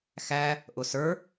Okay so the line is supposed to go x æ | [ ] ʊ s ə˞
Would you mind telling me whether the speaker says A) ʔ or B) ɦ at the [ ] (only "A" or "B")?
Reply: A